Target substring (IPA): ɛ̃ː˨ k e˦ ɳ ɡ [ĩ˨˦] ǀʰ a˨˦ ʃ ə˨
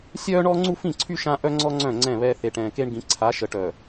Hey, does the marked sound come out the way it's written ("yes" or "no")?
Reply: yes